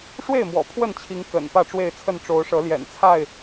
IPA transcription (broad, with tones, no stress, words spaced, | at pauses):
ʂwe˥˨ɪ̯mwɔ̰˨˩ pʰwə˥˨nt͡ɕʰi˨˦ŋ kə̰˨˩n pä˥˨ʈ͡ʂwe˥˨ɪ̯t͡sʰə˥˨n ʈ͡ʂo˨˦ʊ̯ʂɤ˨˦ljɛ̰˨˩nt͡sʰa˥˨ɪ̯